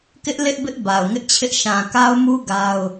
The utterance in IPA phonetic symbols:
k ɪ˦ ʔ l ɪ˦ ʔ b ɪ˦ ʔ b a˨ ʊ̯ ŋ ɪ˦ ʔ t͡ɕʰ ɪ˦ ʔ ʃ ã˨ k a˦ ʊ̯ m u˦ ɡ a˦ ʊ̯

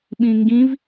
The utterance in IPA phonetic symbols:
ɓ ĩ ŋ ɡ ĩ v

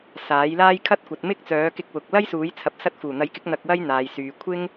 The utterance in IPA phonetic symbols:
s aː˨˥ j l aː˥ j kʰ ɐ˥ t̚ kʷ ɐ˨˥ t̚ m ɪ˥ k̚ t͡s œː˨˥ k ɪ˧ k̚ w ʊ˨ k̚ l ɐ˥ j s uː˨˥ j t͡sʰ ɐ˨˥ p̚ s ɐ˧ t̚ f uː˨˩ n̪ ɐ˨˥ j k ɪ˨˥ k̚ n̪ ɐ˧ k̚ w ɐ˥ j n̪ aː˨ j s yː˨ kʷʰ ɪ˥ ŋ

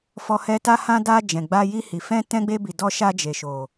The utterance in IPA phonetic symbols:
f ɔ˧ h ɛ˧ t a˧ h ã˧ d a˧ d͡ʒ ɛ̃˨ ɡ͡b a˧ j i˧ h i˨ f ɛ̃˧ t ɛ̃˧ ɡ͡b e˧ b i˨ d ɔ˧ ʃ a˧ d͡ʒ e˨ ʃ o˨

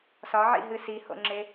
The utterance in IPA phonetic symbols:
s ɒ ʕ ḭ ɦ ɨ s i h o̰ ŋ͡ǁ e

